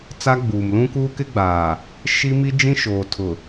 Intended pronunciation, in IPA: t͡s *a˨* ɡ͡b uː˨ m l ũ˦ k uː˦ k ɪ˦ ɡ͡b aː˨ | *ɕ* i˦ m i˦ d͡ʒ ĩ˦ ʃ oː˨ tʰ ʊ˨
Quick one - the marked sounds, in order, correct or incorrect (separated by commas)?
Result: incorrect, incorrect